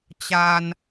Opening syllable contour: high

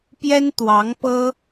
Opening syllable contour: high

